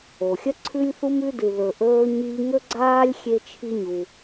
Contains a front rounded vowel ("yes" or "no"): no